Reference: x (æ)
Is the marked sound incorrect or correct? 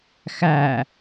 correct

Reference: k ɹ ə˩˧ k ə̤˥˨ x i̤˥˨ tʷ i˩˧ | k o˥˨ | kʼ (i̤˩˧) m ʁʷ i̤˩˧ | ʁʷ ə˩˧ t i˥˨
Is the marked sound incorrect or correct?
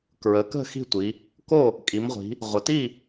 incorrect: i˩˧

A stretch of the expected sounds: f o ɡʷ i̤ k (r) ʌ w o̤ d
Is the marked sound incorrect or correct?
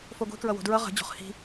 incorrect: ɹ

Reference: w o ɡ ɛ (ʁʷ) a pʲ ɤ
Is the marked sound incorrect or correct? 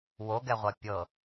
correct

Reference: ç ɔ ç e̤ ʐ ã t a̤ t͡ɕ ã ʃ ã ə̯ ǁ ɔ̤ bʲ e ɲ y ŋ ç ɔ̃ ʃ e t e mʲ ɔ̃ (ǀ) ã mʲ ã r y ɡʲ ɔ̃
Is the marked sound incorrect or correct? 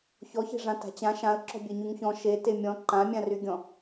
incorrect: ǃ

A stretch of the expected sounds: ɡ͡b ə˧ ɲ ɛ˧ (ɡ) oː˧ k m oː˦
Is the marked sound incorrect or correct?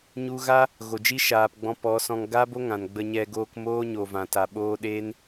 correct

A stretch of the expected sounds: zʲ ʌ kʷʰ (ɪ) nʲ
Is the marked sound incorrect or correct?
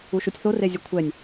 incorrect: ɛ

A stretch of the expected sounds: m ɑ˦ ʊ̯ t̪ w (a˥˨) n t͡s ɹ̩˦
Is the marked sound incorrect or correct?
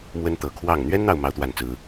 correct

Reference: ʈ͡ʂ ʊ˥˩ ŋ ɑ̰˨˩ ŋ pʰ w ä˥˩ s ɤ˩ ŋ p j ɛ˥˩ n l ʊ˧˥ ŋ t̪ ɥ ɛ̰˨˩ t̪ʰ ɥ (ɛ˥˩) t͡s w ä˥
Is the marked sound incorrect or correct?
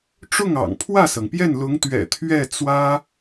correct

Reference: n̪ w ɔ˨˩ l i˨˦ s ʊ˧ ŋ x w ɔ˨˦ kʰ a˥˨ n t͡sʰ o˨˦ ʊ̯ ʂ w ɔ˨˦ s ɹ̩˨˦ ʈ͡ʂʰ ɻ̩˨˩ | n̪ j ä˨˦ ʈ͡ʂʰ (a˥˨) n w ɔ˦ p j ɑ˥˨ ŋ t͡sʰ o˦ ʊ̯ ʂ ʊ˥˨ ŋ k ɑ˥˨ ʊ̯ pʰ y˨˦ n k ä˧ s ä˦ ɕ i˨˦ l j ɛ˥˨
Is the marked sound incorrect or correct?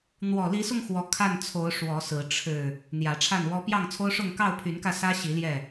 correct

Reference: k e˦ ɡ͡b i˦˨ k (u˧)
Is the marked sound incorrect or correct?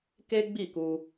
correct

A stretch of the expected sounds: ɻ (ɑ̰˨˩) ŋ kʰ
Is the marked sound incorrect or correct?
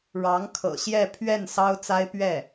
incorrect: ɑ˧˥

